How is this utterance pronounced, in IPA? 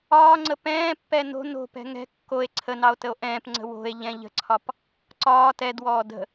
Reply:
ɒː ŋ͡ǀ ə p ɛ̃ː pː ɛ n o̤ n o̤ p ɛ̤ ŋ ɛ̤ kː o e̯ ǀʰ ə n ɑ o̯ t ə o̯ ʔ ɛ̃ː p ŋ͡ǀ ə̤ w o̤ e̯ ʎ ɛ̃ ʎ ə̤ ǀʰ ɒ p | ǀ ɒː t ɛ d w ɔː d ə̤

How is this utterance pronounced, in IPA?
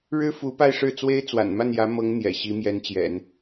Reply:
ɻ ɻ̩˥ f u˧˥ p a˥˧ ɪ̯ ʂ ɻ̩˥˩ t͡s w e˥ ɪ̯ t͡s w a̰˨˩ n m a˥˩ n j ä˧˥ m ɤ˧˥ ŋ n̪ j ɛ̰˨˩ ɕ i˧˥ m j ɛ˧˥ n t͡ɕ j ɛ̰˨˩˦ n

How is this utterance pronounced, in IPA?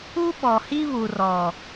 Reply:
u˦ ɓ ɔ˨ h i˦ β u˨ r ɔ˨

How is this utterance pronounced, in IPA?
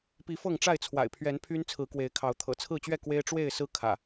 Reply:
p i˨˦ f ɤ˥˨ ŋ ʈ͡ʂ a˥˨ ɪ̯ t͡sʰ w a̰˨˩ ɪ̯ pʰ ɥ ɛ˨˦ n pʰ y˦ n t͡sʰ ɹ̩˨˦ k w e˨˦ ɪ̯ kʰ ɑ˨˦ ʊ̯ t̪ʰ ɤ̰˨˩ t͡sʰ ɹ̩˥˨ t͡ɕ ɥ ɛ˥˨ k w e˦ ɪ̯ ʈ͡ʂ w e˥˨ ɪ̯ s ɹ̩˦ kʰ ä̰˨˩

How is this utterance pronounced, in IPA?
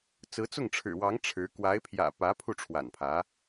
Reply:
t͡s ɹ̩˧˥ t͡s ʊ˥˩ ŋ ʈ͡ʂʰ ɻ̩˨˩ w ɑ˧˥ ŋ ʈ͡ʂʰ ɻ̩˧˥ k w a˧˥ ɪ̯ pʰ j ä̰˨˩ p ä˧˥ pʰ u˥˩ ʈ͡ʂʰ w a̰˨˩ n pʰ ä˧˥

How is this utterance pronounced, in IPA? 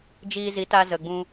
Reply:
d͡ʒ iː˧ z i˨˦ t a˧ z ə˨ ɡ͡b ũ˧

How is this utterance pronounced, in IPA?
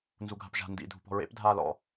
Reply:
n z u ɡʱ a̤ p ʒ a̤ n d ḭ dʱ ṳ p ɔ̤ ɹ ḛ p dʱ aː l ɔ̰

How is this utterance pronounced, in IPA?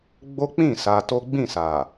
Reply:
ɡ͡b o˦ k͡p ĩ˦˨ s a˧ t o˦ ɡ͡b ĩ˦˨ s a˨

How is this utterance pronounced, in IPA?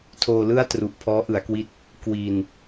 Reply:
tʰ oː˧ l ɯ˥˩ a̯ t r u˨˩ ʔ pʰ ɔː˦˥ ʔ ɯ˩˦ a̯ k w i˥˩ t̚ | k w i˧ n

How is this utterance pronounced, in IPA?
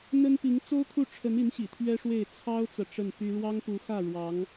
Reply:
n̪ ə˥ n p i˧˥ ŋ t͡s o˥ ʊ̯ kʰ u˥˩ ʈ͡ʂʰ ə˧˥ n i˧˥ n ɕ ḭ˨˩ t̪ʰ ɥ ɛ˥ ʂ w e˥˩ ɪ̯ t͡sʰ ɑ˥ ʊ̯ t͡s ɤ˨ ʈ͡ʂ ə˥˩ n p y˥ ɻ w ɑ˥ ŋ p u˧˥ x ä˥˩ ɻ w ɑ˧˥ ŋ

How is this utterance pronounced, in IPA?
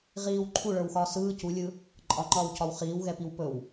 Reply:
ʁ iː w ǃʰ u ɭ ə˞ w x ɒː s ɯː c u lʲ ɯ | ǃʼ ɒ ŋ͡ǃ ɒː w c ɒ w χ iː w ɣ ɛ p i w p ɵ w

